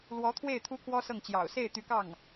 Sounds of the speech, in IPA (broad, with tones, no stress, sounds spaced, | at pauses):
l w ɔ˧˥ t̪ʰ w e˥˩ ɪ̯ t̪ʰ u˥ kʰ w ɔ˥ s ɤ˥˩ ŋ t͡ɕ j ɑ̰˨˩ ʊ̯ s e˥˩ ɪ̯ t̪ y˧˥ k ɑ˥˩ ŋ